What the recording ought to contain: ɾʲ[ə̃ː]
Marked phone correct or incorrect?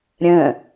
correct